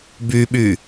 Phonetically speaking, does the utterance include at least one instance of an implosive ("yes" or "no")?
yes